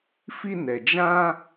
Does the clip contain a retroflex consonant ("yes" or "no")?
no